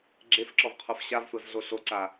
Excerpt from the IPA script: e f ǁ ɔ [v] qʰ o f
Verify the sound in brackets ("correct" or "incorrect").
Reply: correct